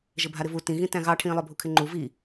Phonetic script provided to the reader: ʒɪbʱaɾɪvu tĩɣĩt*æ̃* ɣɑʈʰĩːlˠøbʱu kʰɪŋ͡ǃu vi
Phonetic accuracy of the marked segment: correct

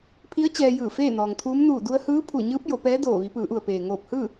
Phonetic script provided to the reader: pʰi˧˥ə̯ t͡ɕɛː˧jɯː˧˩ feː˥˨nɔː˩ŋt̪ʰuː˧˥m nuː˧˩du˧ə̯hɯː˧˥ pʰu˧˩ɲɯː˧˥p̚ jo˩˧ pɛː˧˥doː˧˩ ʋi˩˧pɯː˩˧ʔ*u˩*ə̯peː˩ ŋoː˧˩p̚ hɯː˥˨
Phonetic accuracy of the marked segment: correct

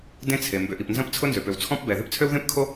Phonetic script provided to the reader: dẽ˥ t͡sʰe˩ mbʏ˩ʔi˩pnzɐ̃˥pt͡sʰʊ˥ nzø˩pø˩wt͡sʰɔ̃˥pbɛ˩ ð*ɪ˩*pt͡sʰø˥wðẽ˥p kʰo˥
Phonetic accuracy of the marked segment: incorrect: ɪ˥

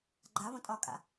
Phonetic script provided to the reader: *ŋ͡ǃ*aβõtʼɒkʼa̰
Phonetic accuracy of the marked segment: incorrect: ɡ͡ǃ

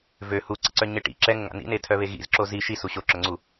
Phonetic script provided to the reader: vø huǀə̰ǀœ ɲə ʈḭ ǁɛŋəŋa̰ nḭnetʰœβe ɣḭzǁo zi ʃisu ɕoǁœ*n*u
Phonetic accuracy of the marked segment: incorrect: ŋ͡ǀ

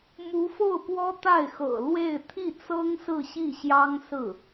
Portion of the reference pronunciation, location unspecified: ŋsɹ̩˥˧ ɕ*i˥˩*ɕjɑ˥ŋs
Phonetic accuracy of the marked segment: correct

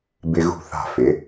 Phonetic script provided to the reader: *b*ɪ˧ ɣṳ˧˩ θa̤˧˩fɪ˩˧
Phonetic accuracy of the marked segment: correct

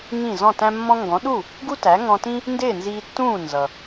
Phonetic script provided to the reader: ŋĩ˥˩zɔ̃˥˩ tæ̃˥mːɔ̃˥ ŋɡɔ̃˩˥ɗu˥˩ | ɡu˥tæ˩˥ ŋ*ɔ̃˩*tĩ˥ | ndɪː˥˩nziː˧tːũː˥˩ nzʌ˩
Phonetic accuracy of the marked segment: incorrect: ɔ̃˧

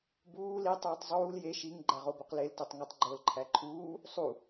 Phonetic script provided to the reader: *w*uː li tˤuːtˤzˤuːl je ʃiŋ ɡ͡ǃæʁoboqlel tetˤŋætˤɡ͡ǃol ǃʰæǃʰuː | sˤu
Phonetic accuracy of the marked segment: incorrect: b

